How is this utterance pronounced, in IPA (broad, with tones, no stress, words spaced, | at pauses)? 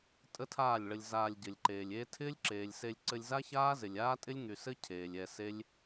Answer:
tʼə˦tʰaː˦˨lʲɭə˧lʲ zaː˧lʲɟɘ˨lʲǃeː˨lʲeː˦ tʰɪː˦lʲǁeː˨lʲse˧lʲ ǀɘ˧lʲza˦ çaː˦zɪ˨lʲ aː˦tʼɪ˦lʲŋy˨sɘ˦ cʰeː˨lʲɛ˧se˦lʲ